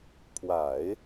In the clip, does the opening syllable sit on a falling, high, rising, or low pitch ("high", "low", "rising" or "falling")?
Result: low